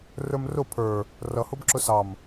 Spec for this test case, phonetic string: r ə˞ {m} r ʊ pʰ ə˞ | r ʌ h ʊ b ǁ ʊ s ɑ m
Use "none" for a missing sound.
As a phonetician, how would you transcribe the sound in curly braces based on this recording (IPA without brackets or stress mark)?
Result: m